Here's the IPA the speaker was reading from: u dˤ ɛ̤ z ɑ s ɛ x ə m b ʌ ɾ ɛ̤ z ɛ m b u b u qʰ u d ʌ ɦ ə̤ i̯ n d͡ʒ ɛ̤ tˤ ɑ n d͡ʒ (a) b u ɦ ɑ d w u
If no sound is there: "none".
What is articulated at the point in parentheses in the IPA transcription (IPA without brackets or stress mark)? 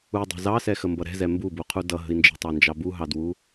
ɑ